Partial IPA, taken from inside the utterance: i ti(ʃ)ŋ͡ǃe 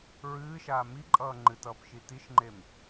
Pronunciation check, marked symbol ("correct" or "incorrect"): correct